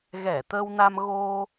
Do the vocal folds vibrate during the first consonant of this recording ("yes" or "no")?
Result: yes